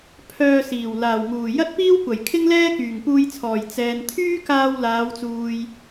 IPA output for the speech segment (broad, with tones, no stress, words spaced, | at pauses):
pʰœː˧siː˨˩w laː˨˩wŋuː˨˩ jɐ˥t̚piː˥wkʷɐ˨˩j kʰɪ˥ŋlɛː˥ kyː˨˩ŋpuː˧jt͡sʰɔː˨˩j t͡sɛː˨n t̪ʰyː˥kaː˧w laː˨˧wt͡suː˨j